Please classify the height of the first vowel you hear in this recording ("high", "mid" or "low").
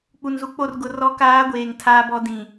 high